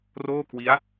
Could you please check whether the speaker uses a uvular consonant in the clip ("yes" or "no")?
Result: no